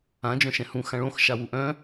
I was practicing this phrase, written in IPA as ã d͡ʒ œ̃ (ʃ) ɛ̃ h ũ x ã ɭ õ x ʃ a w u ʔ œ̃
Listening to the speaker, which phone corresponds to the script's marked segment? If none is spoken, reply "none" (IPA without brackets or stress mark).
ʃ